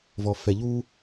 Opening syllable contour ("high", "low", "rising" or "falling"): low